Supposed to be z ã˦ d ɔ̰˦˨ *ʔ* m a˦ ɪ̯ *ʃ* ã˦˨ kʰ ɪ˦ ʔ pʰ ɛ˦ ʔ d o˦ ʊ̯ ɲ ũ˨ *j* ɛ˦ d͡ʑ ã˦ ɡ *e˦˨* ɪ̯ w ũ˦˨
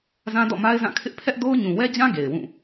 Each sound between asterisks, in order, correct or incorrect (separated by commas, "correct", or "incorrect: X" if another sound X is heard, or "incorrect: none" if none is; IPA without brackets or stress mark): incorrect: none, incorrect: z, incorrect: w, incorrect: e˨